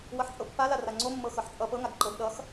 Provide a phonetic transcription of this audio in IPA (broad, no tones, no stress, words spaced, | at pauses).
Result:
wʌħt͡sʼɤpːala raŋ͡ǀomːɤ xɤħt͡sʼʌ pɤ ŋaɡǃɤd ɗʌx